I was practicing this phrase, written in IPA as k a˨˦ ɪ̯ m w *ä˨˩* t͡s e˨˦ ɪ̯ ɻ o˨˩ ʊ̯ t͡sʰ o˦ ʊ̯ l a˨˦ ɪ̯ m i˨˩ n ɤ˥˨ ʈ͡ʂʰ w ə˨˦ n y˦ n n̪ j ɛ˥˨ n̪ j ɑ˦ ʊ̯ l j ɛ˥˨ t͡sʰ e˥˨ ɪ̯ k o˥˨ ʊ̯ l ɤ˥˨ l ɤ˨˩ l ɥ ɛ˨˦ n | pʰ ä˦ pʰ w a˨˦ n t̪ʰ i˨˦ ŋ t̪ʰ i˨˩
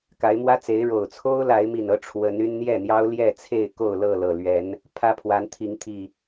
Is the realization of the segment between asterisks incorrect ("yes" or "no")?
yes